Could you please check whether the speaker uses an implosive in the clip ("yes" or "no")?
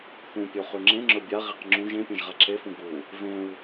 no